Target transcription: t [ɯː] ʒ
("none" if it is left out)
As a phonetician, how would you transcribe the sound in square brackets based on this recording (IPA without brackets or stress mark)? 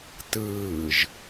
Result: ɯː